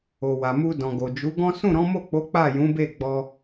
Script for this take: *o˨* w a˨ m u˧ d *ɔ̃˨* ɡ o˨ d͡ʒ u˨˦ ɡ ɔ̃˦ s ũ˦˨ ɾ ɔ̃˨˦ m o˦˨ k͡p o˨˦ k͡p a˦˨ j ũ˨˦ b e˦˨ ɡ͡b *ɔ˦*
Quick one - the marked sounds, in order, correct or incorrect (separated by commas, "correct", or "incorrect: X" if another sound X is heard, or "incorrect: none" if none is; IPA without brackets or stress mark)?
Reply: correct, correct, incorrect: ɔ˧